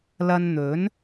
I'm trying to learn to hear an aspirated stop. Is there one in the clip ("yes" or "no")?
no